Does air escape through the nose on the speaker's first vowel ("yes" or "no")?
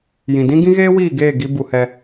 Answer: yes